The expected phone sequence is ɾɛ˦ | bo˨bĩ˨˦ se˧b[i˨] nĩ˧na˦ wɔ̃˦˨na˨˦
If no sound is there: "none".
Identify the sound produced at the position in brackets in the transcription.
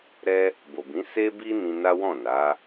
i˧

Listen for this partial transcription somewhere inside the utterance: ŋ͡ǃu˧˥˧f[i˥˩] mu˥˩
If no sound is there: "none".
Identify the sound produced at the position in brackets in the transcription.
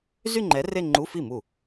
i˥˩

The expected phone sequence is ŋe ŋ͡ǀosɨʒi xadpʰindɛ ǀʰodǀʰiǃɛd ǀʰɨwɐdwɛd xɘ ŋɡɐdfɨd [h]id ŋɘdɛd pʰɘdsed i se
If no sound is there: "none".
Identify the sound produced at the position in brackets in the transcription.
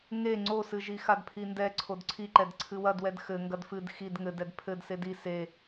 x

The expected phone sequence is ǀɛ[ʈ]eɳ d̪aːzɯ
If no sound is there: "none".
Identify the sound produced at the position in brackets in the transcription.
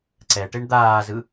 ʈ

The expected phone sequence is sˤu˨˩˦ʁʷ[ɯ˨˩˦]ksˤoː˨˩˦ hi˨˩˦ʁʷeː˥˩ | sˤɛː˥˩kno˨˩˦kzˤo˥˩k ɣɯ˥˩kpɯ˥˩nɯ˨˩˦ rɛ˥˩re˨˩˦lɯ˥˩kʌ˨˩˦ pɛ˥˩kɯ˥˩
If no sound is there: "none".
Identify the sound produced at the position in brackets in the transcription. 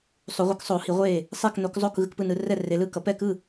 ɯ˨˩˦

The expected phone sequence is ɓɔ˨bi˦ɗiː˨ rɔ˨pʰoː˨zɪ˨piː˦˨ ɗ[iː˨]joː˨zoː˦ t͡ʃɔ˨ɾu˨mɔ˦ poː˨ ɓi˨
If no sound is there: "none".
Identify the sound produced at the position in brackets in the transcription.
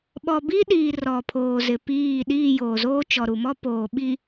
iː˦˨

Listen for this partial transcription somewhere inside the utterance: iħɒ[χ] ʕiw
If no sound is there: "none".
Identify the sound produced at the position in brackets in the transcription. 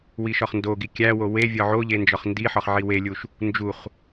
χ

